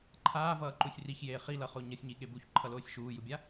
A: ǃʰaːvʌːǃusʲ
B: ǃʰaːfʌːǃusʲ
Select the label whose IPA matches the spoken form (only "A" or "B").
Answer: A